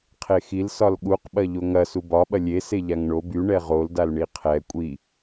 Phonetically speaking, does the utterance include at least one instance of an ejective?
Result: yes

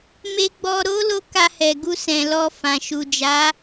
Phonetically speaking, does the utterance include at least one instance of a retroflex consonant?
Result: no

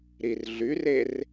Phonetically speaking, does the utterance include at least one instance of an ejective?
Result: no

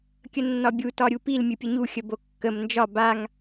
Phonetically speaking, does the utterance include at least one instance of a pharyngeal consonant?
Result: no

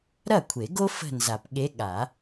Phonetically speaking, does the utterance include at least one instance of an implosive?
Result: yes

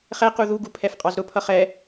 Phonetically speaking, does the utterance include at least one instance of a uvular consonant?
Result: yes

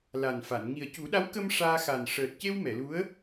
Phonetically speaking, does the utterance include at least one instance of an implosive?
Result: yes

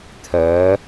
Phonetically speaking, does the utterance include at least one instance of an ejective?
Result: no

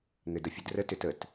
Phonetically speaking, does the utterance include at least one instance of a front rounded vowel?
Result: yes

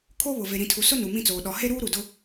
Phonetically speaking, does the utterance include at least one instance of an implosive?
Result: yes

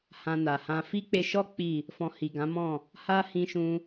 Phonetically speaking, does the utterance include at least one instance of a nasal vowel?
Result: yes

